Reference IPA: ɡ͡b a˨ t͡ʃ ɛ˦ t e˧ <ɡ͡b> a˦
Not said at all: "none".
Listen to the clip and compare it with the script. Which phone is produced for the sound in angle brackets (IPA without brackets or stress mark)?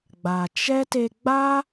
ɡ͡b